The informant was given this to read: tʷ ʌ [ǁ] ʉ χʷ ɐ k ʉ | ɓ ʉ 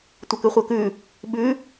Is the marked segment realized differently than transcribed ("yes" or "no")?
yes